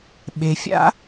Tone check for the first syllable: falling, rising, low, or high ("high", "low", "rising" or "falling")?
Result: low